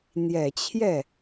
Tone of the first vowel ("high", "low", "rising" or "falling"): low